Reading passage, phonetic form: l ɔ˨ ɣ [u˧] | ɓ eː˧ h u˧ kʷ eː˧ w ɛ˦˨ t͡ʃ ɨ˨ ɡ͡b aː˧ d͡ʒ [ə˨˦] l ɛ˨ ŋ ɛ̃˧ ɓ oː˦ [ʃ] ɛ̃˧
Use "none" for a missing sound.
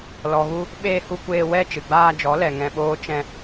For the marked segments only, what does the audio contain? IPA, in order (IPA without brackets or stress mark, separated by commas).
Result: u˧, ɔ˨˦, t͡ʃ